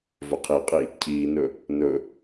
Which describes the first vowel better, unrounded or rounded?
rounded